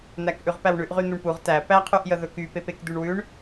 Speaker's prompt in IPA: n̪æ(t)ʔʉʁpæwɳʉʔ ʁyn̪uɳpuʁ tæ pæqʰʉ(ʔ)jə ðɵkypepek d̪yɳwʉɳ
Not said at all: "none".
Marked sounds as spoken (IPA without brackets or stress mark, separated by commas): k, ʔ